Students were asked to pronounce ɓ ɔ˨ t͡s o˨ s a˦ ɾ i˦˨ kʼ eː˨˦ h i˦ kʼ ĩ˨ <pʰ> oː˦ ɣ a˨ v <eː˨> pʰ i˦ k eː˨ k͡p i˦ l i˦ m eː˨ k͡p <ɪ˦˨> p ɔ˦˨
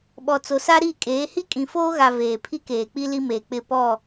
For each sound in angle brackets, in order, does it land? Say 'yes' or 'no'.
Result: no, yes, yes

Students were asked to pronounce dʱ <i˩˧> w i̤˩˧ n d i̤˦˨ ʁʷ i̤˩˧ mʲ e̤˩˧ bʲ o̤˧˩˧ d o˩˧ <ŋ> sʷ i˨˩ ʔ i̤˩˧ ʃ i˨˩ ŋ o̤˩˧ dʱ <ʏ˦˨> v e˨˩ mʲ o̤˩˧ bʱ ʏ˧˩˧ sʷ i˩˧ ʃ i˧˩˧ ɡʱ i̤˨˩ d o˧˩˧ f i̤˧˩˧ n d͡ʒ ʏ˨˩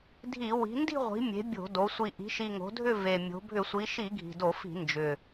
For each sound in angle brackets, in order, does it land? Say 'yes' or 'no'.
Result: no, no, yes

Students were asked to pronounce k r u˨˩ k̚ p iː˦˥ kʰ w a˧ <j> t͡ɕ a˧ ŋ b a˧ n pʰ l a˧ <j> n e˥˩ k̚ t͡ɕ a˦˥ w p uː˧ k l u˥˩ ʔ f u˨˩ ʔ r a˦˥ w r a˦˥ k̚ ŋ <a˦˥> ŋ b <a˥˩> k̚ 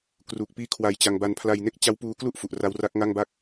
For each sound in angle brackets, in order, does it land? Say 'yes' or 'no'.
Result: yes, yes, no, yes

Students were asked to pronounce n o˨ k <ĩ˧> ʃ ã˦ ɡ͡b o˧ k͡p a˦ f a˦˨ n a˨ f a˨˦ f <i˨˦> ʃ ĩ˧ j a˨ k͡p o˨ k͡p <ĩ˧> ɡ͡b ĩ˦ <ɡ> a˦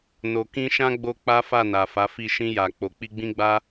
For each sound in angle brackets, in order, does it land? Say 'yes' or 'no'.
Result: yes, no, no, no

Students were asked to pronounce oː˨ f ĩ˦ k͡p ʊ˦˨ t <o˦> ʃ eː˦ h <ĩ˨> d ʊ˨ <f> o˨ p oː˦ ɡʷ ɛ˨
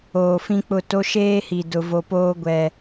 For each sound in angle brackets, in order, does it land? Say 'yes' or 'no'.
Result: yes, no, no

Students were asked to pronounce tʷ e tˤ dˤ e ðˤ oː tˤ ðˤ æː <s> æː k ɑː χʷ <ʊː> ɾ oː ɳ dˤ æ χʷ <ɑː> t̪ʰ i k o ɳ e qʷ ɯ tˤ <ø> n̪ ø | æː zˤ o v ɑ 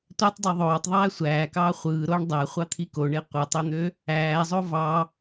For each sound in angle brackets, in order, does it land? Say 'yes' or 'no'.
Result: no, no, no, yes

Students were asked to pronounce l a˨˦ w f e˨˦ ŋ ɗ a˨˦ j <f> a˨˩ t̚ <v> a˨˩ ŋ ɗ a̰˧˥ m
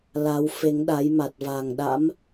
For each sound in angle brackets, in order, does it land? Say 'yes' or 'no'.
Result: no, yes

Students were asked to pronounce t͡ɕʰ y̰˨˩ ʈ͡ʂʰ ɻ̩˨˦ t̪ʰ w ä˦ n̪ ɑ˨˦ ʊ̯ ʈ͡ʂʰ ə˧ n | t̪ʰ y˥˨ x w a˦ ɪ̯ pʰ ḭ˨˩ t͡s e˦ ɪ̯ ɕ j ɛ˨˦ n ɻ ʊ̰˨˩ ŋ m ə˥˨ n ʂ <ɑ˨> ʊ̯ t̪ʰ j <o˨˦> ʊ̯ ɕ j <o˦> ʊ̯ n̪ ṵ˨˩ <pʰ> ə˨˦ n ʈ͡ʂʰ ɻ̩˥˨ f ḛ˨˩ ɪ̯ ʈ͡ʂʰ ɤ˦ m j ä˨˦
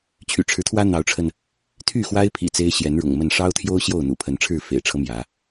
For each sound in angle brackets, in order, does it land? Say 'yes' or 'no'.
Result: no, no, no, yes

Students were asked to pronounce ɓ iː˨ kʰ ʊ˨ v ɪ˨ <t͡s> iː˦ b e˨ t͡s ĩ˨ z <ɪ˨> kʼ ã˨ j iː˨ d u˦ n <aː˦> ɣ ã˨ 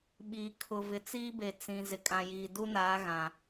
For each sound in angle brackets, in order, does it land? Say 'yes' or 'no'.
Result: yes, yes, no

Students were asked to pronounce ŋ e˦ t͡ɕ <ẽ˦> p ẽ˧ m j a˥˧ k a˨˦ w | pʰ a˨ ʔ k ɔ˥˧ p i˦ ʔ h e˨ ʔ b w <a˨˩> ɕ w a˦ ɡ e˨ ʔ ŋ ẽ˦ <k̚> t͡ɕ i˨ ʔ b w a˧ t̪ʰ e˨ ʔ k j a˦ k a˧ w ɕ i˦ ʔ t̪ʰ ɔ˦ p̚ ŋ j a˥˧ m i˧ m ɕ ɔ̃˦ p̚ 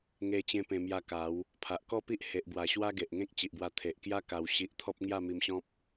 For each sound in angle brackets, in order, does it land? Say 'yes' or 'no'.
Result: yes, yes, yes

